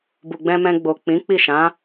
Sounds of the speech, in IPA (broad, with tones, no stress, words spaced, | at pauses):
bu˨ɡ͡bɛ̃˧mɛ̃˧ɡ͡bo˨ k͡pĩ˨˦k͡pi˦˨ʃã˨˦